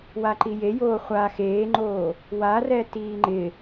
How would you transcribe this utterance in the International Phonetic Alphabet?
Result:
w a ǃ i j e j oː χʷ a x eː ŋ͡ǃ oː | w a r ɛ t iː ŋ͡ǃ ɪ

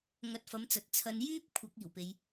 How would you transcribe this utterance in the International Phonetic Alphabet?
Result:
ŋ ɐ˧ t̚ f ɐ˨˥ m t͡s ɐ˨ t̚ t͡sʰ ɐ˨ n j yː˥ p̚ kʷʰ ɐ˨˥ k̚ iː˨˩ w p e˨˧ j

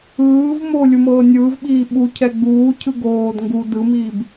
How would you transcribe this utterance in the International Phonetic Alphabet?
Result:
ɯː v m o lʲ u m ɤː nʲ ɯː v ɓ iː ɓ u cʰ ɛ ɡ͡b uː cʰ ɯ ɡ oː d ŋ ɡ u d ɯ m iː b

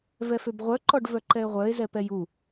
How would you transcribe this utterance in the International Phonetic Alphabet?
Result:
v ɛ f ø b ʁʷ œ ǃ ɔ ɖ v œ ǃ ɛ e̯ ʁʷ œ e̯ z ɛ p ɛ j u

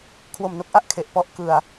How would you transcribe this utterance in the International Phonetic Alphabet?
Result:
kʰ w o˨˩ m n o˦˥ k̚ ʔ a˦˥ ʔ kʰ e˨˩ ʔ p ɔ˥˩ ʔ k ɯ˨˩ a̯

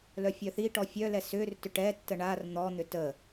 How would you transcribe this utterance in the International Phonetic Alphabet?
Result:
l œ fʲ œ θ i ʈ ɔ fʲ œ l ɛ s ʏ r t ʏ ʈ ɛ tː ə ɳ a r n̪ ɔ n̪ ʏ t ə

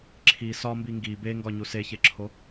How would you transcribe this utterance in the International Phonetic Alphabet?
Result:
ǁʰ i s ɒ m b i ŋ ɡ i b e ŋ ɡ ɒ ɲ u s e ç e ǁʰ o

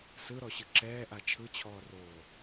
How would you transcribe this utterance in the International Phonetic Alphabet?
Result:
s ɯ ɾ ɔ ɕ ɯ ǁ ɛː ʔ a t͡ʃʰ ɯ t͡ɕʰ ɔː r oː

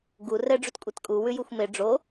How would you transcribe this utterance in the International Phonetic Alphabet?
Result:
ɡ u r ɛ ɖ͡ʐ u t kʷʼ e t kʼ u w ʉ j u xʷ m e ɖ͡ʐ o

